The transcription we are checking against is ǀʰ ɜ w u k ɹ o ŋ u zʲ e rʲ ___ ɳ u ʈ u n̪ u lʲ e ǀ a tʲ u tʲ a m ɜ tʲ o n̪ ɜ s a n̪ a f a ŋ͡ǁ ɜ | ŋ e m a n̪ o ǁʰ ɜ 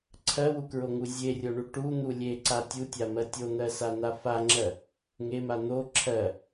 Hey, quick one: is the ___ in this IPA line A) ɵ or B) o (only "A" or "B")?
B